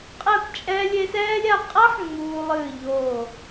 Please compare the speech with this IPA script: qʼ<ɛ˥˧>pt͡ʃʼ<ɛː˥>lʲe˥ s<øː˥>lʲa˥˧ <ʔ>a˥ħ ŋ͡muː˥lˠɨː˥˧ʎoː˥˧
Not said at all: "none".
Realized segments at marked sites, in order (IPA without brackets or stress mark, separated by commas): ɛ˥˧, ɛː˥, ɛː˥, qʼ